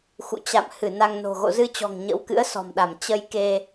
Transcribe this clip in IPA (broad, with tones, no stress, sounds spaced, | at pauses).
x ṵ˧˨ t͡ɕ a̰˧˨ m h ɨ˧˩ n a˧ ŋ n o̤˨˩ ɣ o̰˧˨ z ɨ˧ t͡ɕ ɔ̤˨˩ ŋ ɲ ə̰˧˥ w k ɨ̰˧˥ ə̯ s ɔ̤˨˩ m ɗ a˧˩ m t͡ɕ ə˧ j k e˧